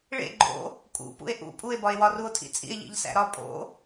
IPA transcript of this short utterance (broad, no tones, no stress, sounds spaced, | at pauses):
ɭ ḛ ɡ͡ǃ o̰ | kʼ ṵ p ṵ e̯ ʔ ṵ pʼ u e̯ b ɒ e̯ w ɒ r u o̯ tʰ ḭ t͡sʼ ḭ e̯ ʎ ḭ ʎ s æ̰ ɾ ɒ pʼ o̰